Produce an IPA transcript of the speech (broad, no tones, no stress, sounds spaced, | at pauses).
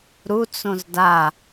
ɾ u t͡s õ z d a